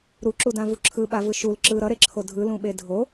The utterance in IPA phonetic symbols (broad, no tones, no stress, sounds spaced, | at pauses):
ɾ u ǁ u d ã v u ǁʰ ɯ ɓ a v ɯ ʃ u l ǁ ɯ ɾ ʌ ɾ e ǁʰ o dʱ ɯ l ũ ɓ e dʱ o